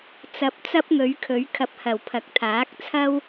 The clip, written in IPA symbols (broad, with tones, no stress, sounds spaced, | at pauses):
t͡s ɐ˨˥ p̚ t͡s ɐ˥ p̚ ŋ ɵ˨˥ ɥ kʰ ɵ˨˥ ɥ kʰ ɐ˨ p̚ h ɐ˨˩ w pʰ ɐ˨˥ k̚ t̪ʰ aː˨˥ k̚ t͡sʰ ɐ˥ w